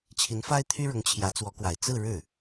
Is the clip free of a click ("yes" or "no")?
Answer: yes